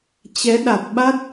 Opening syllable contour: rising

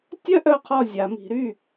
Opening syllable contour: high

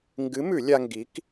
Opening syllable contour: rising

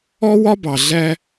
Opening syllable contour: high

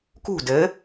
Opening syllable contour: falling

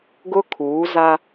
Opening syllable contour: high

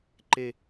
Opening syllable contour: low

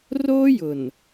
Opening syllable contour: high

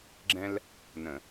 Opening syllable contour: high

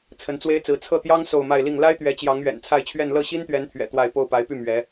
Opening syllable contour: rising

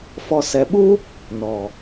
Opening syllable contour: low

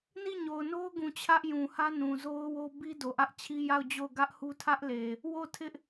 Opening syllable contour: falling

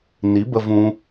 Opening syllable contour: rising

